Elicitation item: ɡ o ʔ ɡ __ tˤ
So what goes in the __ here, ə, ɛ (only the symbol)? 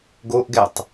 ɛ